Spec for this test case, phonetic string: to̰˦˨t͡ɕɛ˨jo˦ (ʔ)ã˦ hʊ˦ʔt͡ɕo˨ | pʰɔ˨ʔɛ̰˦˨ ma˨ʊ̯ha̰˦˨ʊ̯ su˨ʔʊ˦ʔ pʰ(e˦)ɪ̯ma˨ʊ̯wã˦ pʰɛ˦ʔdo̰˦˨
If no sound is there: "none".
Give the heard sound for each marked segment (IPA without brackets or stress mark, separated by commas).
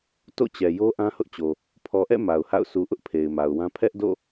ʔ, e˨